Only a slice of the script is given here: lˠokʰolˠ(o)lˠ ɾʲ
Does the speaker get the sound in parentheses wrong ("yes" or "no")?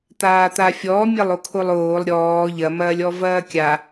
yes